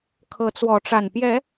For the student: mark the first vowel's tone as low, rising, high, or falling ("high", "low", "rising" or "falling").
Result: rising